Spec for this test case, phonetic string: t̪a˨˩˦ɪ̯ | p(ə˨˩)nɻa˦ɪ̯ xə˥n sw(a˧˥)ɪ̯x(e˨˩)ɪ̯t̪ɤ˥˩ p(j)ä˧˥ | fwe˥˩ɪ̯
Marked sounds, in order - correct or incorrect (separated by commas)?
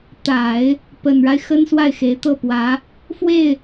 correct, incorrect, incorrect, incorrect